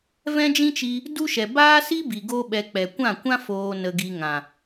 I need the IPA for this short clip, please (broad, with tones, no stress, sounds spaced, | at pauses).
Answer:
v ɛ̃˦ d͡ʒ ĩ˦ t͡ʃ i˧ | d u˦ ʃ ɛ˨ b aː˦ s i˦ b i˨ ɡ o˦ ɓ ɛ˧ k͡p ɛ˨ kʷ ã˦˨ kʷ ã˦ f oː˨ n ə˧ ɡ i˧ ŋ ã˨